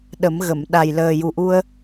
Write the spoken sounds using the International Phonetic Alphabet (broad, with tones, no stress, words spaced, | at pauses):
ɗə˨˩˦mɣə˨˩˨m ɗa˨˩jləː˨˩ju˨˩ ʔu˧ə̯